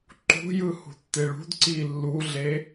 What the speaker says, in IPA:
ǃṳjɯ hṳtːeɭṳdǀiː lːuɮe

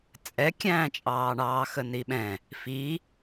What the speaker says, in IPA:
t͡sʼɛkʲæ̃ːt͡ʃʼɑːɳɑː xəniɓɛ̃ | fi

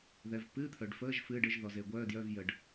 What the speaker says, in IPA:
ðɛ˩vpɨː˧˥˧t̪ʰœ˩ɖfəː˧˥˧ʒ fɨː˧˥˧ɖɘ˧˥˧ʒ ðɔ˩ze˩ɡʷœː˧˥˧djœ˧˥˧v jə˩ɖ

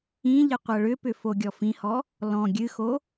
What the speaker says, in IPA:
ĩ ʎɨqʷɤɭʏpʏ foɡʲɔfĩhɔ | lɔ̃ ɡʲɨxo

